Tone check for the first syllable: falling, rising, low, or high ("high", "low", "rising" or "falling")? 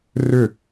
falling